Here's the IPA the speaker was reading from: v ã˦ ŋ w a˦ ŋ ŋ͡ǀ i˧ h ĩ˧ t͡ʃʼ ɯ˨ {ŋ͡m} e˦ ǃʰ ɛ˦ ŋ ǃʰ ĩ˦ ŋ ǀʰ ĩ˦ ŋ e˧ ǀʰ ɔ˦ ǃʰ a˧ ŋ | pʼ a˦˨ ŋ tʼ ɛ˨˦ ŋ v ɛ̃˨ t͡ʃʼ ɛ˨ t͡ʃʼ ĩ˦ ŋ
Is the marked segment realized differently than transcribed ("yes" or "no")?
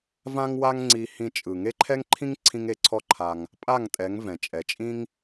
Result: yes